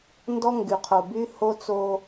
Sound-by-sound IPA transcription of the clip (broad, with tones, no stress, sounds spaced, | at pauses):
n d ɔ˦ ŋ ɡ y˨ qʰ o˨ b y˦ h o˦ t͡s o˦